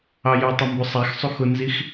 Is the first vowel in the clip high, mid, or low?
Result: low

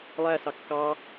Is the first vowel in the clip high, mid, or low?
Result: low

